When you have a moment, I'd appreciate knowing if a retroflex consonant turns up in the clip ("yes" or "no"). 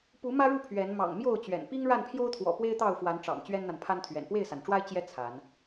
yes